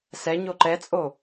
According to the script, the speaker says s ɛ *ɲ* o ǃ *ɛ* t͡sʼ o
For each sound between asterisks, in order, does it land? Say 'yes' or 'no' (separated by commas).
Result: yes, yes